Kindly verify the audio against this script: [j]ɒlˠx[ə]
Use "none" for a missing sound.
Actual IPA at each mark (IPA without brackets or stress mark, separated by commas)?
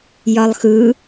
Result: j, ɯ